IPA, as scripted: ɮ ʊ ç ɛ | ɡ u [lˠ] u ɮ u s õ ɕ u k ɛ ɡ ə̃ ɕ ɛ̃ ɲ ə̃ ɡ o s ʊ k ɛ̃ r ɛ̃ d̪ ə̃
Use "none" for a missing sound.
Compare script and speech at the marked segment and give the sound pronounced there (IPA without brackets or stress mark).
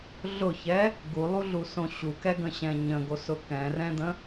lˠ